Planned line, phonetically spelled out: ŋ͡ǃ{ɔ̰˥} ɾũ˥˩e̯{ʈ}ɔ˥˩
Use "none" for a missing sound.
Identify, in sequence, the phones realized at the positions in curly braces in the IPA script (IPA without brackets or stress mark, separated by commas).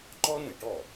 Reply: ɔ˥, ʈ